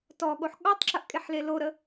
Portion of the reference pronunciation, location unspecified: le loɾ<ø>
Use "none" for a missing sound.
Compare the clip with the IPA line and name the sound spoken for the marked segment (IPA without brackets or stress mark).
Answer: ə